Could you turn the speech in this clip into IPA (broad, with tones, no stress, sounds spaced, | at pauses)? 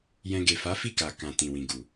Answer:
j ɛ̃˧ ɡ e˨ f a˨˦ f i˦˨ k a˨ k ã˨ t ĩ˨ w ĩ˨ ɡ u˨